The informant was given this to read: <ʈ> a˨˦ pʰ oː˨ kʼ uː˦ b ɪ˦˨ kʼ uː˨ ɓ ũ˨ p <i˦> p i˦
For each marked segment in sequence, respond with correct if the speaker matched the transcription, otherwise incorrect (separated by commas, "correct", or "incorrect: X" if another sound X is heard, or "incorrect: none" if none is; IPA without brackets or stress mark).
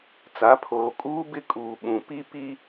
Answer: incorrect: t͡s, correct